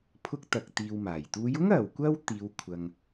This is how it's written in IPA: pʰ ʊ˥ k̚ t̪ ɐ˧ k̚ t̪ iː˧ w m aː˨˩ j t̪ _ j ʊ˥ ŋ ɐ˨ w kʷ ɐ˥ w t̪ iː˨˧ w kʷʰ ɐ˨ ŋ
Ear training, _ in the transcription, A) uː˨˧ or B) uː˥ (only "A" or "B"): A